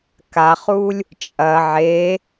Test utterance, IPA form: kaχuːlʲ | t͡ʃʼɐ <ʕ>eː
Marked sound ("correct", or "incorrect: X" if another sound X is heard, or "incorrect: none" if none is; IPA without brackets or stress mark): correct